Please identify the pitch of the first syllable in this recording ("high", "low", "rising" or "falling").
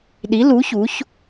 rising